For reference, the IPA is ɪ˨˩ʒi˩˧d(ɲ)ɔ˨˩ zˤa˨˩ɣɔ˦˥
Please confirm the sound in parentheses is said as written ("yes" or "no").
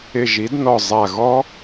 no